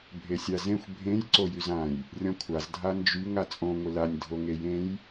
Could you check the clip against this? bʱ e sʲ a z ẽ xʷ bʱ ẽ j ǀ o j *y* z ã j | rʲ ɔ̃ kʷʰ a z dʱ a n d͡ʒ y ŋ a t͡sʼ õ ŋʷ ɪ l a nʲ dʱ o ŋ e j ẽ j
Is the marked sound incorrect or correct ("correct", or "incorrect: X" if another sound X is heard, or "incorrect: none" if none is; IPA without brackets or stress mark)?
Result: correct